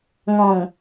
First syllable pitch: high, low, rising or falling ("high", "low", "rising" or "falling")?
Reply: low